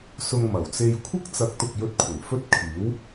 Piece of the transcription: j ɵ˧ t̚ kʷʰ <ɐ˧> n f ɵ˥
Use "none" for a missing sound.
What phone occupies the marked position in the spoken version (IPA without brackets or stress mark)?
ɐ˨˩